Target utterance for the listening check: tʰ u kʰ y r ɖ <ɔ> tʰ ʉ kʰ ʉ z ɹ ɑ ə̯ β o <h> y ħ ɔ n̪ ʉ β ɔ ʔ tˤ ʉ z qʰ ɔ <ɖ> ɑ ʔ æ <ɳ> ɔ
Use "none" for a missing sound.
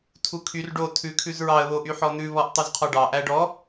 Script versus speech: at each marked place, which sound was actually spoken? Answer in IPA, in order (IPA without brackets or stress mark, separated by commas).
o, ʔ, ɖ, ɖ